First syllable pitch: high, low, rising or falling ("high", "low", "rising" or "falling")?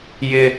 high